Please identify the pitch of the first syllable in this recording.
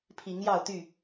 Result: rising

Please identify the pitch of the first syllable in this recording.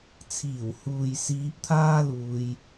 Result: low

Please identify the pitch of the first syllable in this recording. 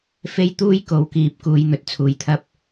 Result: high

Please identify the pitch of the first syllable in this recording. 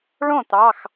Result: falling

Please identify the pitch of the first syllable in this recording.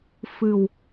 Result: low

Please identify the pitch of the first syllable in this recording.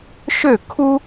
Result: falling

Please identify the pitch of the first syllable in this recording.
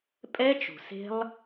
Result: high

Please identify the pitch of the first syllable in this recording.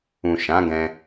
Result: low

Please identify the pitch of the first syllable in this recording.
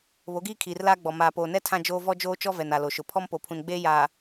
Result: rising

